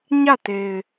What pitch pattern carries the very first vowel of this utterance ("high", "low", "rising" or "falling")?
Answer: falling